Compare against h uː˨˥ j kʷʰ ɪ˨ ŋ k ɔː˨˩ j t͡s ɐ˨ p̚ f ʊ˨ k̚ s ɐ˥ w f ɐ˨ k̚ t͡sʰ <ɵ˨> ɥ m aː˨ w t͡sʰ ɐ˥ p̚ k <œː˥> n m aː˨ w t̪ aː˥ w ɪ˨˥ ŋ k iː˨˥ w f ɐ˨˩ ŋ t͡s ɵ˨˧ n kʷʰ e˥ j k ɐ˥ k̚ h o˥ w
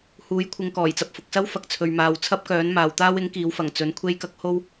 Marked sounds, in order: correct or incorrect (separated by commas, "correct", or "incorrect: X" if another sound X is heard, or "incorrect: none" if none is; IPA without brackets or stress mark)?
correct, incorrect: œː˨˥